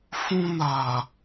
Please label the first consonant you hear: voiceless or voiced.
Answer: voiceless